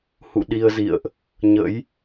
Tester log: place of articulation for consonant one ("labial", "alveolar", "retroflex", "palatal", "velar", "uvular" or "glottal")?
glottal